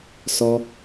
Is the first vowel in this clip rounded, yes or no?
yes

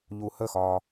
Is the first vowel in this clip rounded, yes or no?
yes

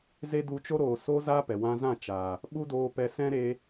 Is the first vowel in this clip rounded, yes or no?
no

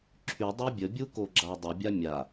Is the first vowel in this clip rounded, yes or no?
yes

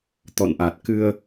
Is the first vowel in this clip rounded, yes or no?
yes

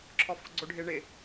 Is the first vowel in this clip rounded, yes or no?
yes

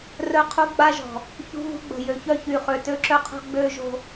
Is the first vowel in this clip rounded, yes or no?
yes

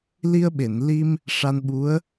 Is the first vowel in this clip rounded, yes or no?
no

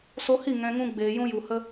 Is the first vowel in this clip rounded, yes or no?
yes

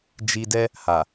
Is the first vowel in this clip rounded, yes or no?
no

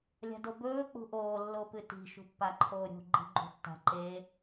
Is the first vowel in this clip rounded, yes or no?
no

